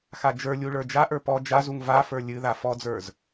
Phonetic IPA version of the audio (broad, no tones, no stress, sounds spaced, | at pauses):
x a d͡ʒ ə˞ lʲ u ɭ ə˞ d͡ʒ a ʔ ə˞ p ɔ d͡ʒ a z u ŋ v a f ə˞ lʲ ɨ ð a f ɔ d͡z ə˞ z